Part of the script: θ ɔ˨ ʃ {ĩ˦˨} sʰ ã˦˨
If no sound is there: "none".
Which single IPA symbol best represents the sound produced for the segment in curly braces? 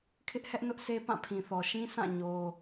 ĩ˦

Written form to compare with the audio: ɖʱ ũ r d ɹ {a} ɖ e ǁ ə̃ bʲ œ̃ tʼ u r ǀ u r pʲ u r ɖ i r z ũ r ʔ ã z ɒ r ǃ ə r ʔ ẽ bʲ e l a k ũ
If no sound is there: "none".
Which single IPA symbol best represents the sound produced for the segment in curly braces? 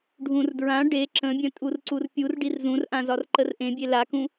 ã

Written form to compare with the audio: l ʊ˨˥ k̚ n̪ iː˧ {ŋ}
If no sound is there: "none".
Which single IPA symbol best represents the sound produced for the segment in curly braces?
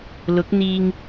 ŋ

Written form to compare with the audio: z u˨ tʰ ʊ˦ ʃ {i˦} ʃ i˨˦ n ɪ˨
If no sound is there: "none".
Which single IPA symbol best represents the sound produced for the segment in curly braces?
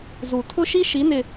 i˦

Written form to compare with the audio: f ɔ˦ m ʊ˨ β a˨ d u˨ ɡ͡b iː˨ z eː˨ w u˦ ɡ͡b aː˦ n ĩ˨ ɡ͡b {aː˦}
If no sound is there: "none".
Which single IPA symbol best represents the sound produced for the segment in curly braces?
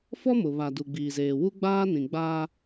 aː˦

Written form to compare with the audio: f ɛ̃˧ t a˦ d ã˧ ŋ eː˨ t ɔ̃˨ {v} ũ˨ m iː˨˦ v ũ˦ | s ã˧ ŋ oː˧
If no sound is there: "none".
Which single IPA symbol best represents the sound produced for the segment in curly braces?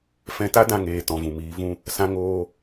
v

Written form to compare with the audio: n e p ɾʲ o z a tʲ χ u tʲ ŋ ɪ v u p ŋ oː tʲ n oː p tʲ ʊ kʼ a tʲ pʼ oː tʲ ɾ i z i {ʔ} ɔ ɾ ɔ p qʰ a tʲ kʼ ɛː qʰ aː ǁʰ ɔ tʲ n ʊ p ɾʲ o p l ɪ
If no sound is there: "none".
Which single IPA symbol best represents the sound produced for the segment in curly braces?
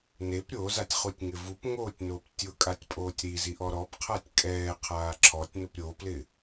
ʔ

